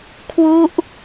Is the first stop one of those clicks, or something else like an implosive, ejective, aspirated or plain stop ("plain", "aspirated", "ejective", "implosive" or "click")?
aspirated